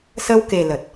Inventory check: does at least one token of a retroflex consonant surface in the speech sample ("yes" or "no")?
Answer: no